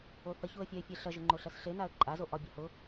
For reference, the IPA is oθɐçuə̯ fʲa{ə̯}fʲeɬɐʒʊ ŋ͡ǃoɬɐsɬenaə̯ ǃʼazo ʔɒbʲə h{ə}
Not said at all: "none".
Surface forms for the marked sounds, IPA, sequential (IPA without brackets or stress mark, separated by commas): ɪ̯, ʊ